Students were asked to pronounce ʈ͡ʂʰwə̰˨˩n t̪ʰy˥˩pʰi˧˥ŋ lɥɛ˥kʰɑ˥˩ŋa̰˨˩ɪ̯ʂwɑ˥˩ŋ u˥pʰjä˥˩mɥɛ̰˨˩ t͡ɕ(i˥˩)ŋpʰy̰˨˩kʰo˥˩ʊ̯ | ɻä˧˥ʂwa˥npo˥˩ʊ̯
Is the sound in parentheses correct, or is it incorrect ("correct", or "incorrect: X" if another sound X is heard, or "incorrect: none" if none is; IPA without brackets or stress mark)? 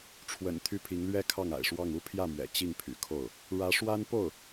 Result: correct